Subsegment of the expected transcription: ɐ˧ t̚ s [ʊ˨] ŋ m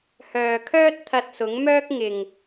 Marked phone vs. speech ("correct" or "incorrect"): incorrect